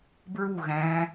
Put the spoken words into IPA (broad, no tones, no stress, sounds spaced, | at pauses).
b ɹ u ɣ æ̃